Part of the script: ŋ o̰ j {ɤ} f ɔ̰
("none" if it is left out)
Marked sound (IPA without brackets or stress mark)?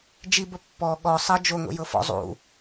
ɤ